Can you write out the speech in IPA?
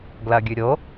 ɡ l ɐ ɡʲ ʉ ɾʲ o

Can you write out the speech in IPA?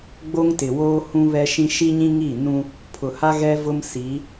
ɡ͡b o˦ ŋ t ɪ˨ w oː˦ h ũ˦ β ɛ˦ ʃ ĩ˦ ʃ i˦ ɲ ĩ˦ ŋ i˦˨ n ũ˦ | pʰ ʊ˨ h a˦ ɣ ɛ˦ v ʊ˦ m s i˨˦

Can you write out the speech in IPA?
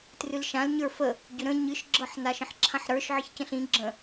t r ɨ l ʃ ã l ɲ ə˞ f ə | ɟ ʏ ɾ ə̃ ɲ ɨ ʃ ɡ͡ǁ ɤ ħ n a ʃ ə̃ ħ ǁʰ ã ħ ɾ ə˞ ʃ ʕ ə ç c ə̃ ɬ ĩ ɡ͡ǁ ə̃

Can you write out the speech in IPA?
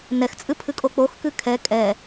n ɛ x t͡sʼ ɨ pʰ ɨ kʼ o k͡p o x k ɨ kʰ ɛ kʼ ɛ

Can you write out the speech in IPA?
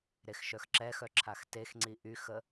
ɾ e x ʃ œ x ǁ ɛ x œ ǁʰ a x t e x ŋ͡ǀ i ʔ y x ə

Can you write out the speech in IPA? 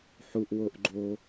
ħ u ʔ w o ʔ ɡ͡ǃ o

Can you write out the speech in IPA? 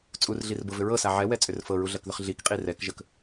t͡sʼ u r ɮ i r b ɤ v ʏ ɹ ɤ s a ʕ ɛ w ɛ t͡sʼ ʏ r f ɤ ɹ u ɮ ɜ k ð ʏ χ ɮ i k qʼ i r ɛ k ʒ ə k

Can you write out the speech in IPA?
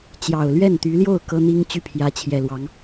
t͡ɕ j ɑ˨˩ ʊ̯ l ɥ ɛ˥˩ n t̪ y˧˥ l j o˥˩ ʊ̯ k ɤ˥ n̪ i˥ ŋ t͡ɕ y˥˩ pʰ j ä˧˥ t͡ɕʰ j ɛ˨˩ l w ɑ˧˥ ŋ

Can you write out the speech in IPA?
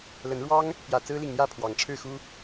l ə˨˦ n ɻ w ɑ˦ ŋ | p j ä˨˩ t͡s ɹ̩˦ l i˨ ŋ n̪ j ä˥˨ pʰ w ɑ˨˦ ŋ ʈ͡ʂʰ ɻ̩˥˨ x u˦

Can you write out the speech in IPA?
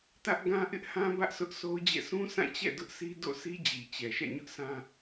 t ä˦ ʔ ɡ ã˦ ʔ ɪ˦ ʔ h ã˦ b ä˦ ʔ sʰ ʊ˦ ʔ s o˦ ʊ̯ d͡ʑ ɛ̰˦˨ s ũ˦ s ã˦˨ t͡ɕ ɛ̰˦˨ d ʊ˦ ʔ sʰ i˦ d o̰˦˨ s i˦ d͡ʑ i˨ t͡ɕ ɛ˨ ʃ ɛ̰˦˨ ɲ ʊ˦ ʔ s ã˦

